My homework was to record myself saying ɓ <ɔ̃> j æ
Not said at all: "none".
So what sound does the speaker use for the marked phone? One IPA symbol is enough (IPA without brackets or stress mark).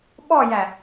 ɔ